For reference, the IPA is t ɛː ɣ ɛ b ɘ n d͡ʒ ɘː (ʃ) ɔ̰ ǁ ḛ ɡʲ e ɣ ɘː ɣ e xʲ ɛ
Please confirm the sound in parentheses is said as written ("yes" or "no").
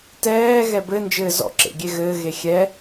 no